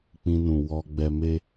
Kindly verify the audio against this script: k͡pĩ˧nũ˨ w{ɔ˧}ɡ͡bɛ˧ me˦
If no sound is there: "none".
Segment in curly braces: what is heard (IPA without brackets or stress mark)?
ɔ˧